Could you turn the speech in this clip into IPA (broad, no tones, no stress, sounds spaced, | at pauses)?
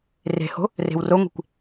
r e̤ h o̤ | r e̤ w r o ŋʷ e̤ kʷ